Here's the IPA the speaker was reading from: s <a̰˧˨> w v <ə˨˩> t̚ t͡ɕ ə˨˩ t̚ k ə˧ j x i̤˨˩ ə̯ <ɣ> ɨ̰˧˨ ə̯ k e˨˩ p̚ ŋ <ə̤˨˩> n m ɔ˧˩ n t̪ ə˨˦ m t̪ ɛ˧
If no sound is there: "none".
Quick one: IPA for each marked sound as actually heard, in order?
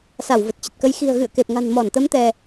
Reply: a˧˩, ə˨˩, ɣ, a̤˨˩

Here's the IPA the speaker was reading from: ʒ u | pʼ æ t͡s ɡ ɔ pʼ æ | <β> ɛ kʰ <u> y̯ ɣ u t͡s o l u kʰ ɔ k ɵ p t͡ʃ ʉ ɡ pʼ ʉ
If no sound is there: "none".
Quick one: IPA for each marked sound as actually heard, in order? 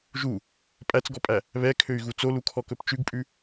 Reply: β, ø

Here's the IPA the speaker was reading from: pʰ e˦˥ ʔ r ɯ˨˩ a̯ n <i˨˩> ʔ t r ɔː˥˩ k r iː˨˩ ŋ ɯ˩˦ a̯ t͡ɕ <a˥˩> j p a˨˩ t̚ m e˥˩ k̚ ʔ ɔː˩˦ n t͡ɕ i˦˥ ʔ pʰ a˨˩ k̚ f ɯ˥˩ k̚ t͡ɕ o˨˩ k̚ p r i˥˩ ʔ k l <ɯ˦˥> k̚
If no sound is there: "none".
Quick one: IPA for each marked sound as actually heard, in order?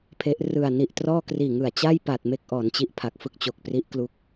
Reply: i˨˩, a˥˩, u˦˥

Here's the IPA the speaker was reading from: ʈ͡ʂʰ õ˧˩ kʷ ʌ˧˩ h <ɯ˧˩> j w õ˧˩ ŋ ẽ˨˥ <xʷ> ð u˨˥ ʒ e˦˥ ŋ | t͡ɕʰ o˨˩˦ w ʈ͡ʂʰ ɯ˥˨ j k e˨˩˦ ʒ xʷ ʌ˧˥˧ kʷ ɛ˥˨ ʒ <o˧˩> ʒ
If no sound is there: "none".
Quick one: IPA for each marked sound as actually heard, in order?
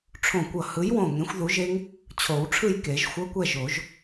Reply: ɯ˨˥, xʷ, o˨˩˦

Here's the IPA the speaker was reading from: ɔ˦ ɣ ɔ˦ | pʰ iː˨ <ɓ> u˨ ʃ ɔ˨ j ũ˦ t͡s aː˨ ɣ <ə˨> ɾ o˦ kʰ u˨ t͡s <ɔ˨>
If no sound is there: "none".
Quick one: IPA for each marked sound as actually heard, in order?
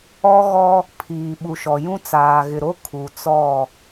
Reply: ɓ, ɪ˨, ɔ˦˨

